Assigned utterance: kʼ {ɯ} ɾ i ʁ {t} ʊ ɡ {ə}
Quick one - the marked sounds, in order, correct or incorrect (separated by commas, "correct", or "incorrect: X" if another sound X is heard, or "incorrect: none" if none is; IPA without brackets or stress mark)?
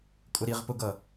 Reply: incorrect: ʊ, incorrect: p, incorrect: ʌ